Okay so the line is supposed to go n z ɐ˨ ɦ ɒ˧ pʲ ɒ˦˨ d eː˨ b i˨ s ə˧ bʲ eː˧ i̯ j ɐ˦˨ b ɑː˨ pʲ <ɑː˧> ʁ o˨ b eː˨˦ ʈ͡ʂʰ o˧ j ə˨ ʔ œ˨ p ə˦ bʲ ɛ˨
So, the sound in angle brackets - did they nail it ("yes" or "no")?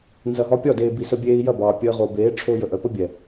no